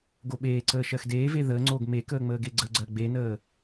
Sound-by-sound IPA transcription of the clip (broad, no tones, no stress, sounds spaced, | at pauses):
ɡ o ɓ eː ǀ əː ʃ ɜ x d eː v e ð əː ŋ͡ǀ oː ɡ m e k əː ŋ͡m əː ɡ e ɡ͡ǀ ə ɡ͡ǀ ɜ ɡ͡b e n əː